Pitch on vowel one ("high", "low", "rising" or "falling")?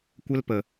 high